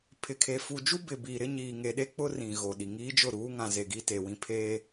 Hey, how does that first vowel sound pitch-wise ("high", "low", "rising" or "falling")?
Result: low